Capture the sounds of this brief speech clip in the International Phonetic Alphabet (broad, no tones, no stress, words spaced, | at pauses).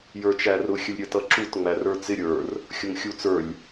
jə˞t͡ʃærʊ xʲəlʲɾʲət ʌǁut ŋ͡mærə˞t͡sɪ ɾʲə˞r | xʲʊŋxʲut͡sə˞lʲ